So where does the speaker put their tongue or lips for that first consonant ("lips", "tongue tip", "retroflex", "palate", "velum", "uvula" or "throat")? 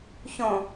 palate